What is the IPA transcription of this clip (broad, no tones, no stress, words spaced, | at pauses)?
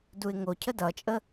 duɪ̯ŋo cʰədʌt͡ʃʼə